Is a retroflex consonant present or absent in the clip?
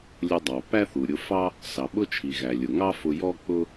absent